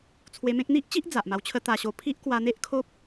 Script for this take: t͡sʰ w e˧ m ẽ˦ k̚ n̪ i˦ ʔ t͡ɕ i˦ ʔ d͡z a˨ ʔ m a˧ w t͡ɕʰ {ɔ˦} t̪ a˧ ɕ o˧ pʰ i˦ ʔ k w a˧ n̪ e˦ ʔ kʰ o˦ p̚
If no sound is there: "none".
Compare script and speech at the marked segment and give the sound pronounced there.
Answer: ə˦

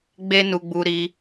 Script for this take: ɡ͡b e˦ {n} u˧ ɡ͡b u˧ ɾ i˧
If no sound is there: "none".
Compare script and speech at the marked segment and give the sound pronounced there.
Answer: n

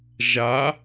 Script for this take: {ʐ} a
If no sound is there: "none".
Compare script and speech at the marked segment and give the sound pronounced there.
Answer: ʒ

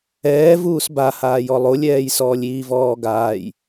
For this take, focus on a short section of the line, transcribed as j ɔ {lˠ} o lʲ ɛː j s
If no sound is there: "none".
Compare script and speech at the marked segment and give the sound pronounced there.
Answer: lˠ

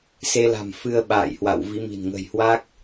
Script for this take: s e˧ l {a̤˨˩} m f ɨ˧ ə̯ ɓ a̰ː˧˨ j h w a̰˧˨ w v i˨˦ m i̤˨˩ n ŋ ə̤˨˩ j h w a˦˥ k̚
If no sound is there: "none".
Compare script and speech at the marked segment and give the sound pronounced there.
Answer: a̤˨˩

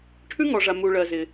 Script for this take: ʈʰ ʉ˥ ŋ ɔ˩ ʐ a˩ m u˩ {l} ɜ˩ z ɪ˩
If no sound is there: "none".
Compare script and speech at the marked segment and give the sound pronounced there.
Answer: ɭ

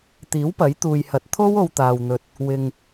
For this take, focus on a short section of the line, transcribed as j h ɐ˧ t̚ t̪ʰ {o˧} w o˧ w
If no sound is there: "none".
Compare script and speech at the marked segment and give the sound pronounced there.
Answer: o˥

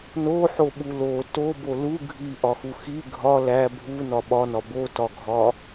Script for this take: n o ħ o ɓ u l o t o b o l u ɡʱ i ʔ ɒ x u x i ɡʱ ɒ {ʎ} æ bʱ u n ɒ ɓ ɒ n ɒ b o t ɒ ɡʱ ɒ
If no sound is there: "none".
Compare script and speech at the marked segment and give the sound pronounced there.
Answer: l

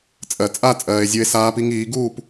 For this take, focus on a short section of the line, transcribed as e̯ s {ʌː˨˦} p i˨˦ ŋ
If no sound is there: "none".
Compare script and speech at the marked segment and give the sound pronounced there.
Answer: aː˨˦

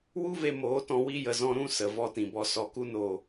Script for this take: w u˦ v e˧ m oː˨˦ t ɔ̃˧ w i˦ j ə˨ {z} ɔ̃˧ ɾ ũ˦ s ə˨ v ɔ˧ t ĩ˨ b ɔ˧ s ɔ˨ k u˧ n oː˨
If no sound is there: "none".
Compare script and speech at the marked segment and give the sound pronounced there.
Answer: z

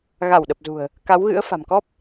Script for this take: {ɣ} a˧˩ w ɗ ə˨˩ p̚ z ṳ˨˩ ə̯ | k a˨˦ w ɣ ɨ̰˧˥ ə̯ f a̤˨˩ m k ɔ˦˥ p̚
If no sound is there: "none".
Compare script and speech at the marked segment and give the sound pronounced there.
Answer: ɣ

